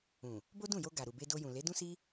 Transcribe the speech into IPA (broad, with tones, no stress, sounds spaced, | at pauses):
ũ˨ | b o˦ d ũ˦˨ j o˧ ɡ a˨ ɾ u˨ b e˧ d o˧ j ũ˨ l e˨˦ d ũ˦ s i˦